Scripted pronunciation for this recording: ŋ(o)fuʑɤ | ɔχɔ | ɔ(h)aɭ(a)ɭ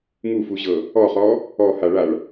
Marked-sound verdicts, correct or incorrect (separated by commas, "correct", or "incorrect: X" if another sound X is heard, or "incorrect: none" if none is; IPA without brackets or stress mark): incorrect: u, correct, correct